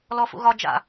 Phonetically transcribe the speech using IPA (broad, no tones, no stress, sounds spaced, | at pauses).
l ɔ f ṵ ɣ ɒ d͡ʒ a̰